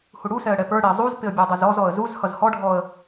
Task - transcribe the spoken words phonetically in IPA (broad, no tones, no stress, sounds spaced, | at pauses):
h u ɽ u s ɛ ə̯ ɽ ɛ p ə˞ ɽ ɪ ə̯ zˤ u z p ɪ ə̯ bʲ ə˞ dˤ ʌ z ɔ z ɔ ə̯ z u z h ʌ z h ɔ ɖʱ ɔ ə̯